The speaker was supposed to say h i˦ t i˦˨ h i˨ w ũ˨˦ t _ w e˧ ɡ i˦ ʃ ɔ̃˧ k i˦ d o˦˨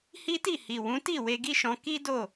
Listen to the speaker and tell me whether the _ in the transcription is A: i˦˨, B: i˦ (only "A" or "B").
A